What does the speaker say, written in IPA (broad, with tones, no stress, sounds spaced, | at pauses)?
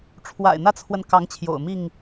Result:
ʈ͡ʂʰ w a̰˨˩ ɪ̯ n̪ ä˦ t͡sʰ w ə˨ n k ɑ˨˦ ŋ t͡ɕʰ j o̰˨˩ ʊ̯ m i˥˨ ŋ